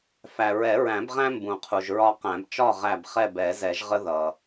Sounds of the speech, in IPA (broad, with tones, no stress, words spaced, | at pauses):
fæ˨ ɹɛ˨˩˦ɹæ̃˨˩˦bʁæ̃˦ mbũ˨qʰu˨ʒ ɹɒ˦qæ̃˨˩˦b t͡ʃɒ˦˨ ʁæ˦˨b χɛ˦˨bɛ˨˩˦zɛ˨˩˦ʒʁə˦ ðʌ˨